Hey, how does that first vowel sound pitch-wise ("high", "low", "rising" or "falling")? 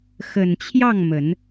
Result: low